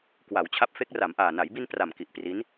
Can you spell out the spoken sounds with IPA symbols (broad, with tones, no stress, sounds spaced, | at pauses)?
k w a˩˦ w t͡ɕʰ a˦˥ p̚ f e˦˥ k̚ r a˩˦ m ʔ aː˨˩ n a˩˦ j b i˧ n p r a˨˩ m k i˨˩ ʔ p r i˦˥ n